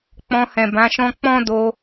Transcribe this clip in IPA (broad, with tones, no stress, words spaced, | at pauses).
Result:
k͡pɔ̃˧hɛ̃˨bã˨˦ʃɔ̃˦ k͡pɔ̃˦do˧